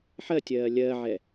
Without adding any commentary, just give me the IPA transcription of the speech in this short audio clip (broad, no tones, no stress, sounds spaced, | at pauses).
ħ ɜ tʲ ɜː lʲ ɜ ʕ ɛ